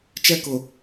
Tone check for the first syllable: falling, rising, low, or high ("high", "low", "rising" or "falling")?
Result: high